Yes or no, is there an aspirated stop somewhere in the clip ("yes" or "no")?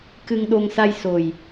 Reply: no